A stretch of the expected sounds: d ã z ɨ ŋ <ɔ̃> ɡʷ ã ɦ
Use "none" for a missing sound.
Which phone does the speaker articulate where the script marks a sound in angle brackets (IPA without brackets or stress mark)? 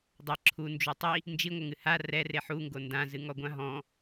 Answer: ɔ